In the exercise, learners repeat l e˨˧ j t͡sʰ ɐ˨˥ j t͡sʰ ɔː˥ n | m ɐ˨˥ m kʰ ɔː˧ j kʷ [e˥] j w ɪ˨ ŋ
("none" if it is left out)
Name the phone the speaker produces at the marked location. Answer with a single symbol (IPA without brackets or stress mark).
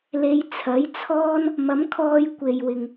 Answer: e˨